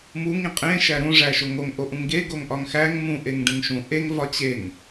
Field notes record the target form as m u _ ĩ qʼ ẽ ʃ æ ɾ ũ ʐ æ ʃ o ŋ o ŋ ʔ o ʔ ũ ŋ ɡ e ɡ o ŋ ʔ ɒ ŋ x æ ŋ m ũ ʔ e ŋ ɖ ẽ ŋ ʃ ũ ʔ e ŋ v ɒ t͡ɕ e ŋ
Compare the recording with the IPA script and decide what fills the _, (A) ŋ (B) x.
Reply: A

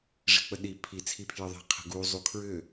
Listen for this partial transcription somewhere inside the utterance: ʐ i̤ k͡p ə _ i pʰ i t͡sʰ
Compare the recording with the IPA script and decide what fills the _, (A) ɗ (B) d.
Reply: A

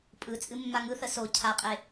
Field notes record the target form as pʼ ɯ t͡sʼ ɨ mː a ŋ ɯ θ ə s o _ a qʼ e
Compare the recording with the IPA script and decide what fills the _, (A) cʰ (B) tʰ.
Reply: A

